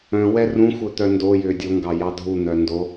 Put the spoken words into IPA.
œ̃ w ɛ r ũ xʷ œ t̪ œ n d o j ʏː dʲ o ŋ ɡ ɑ j ɑ dʱ u n̪ œ n d o

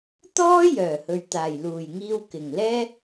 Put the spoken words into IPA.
t̪ ɔː˥ j œː˨˩ h ɵ˨ ɥ t̪ aː˨˩ j l uː˨˩ j ŋ iː˧ w k ɪ˨˩ ŋ l ɛː˥

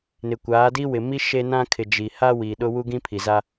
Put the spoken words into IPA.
n ɪ˨ kʷ aː˨˦ d i˦ w ɪ˨ m i˦ ʃ e˦ n ã˦ kʰ ɪ˨ d͡ʒ i˨ h a˦ w i˨ ɗ ʊ˦ w u˦ ɡ ĩ˦ pʰ i˨ z a˦

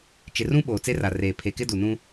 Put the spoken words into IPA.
t͡ʃ ɪ˨ r ũ˦ ɓ oː˨ t͡s e˦ r a˨ r eː˨ pʰ e˨ k ɪ˦ d u˨ n ũ˦

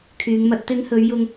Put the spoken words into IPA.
kʰ yː˨˧ ŋ m ɐ˧ t̚ t̪ ɪ˨˧ ŋ h ɵ˨˧ ɥ j ʊ˧ ŋ

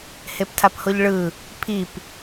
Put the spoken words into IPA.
h e p tʰ a p h o ʎ ɭ ɯ | pʰ i p

